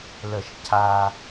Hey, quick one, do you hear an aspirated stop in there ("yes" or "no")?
yes